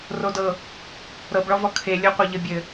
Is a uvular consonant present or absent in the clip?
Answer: present